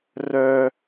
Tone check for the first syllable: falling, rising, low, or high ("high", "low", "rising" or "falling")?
high